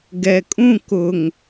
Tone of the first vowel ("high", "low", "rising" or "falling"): low